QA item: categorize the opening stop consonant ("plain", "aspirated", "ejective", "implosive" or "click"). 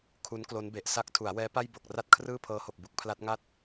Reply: aspirated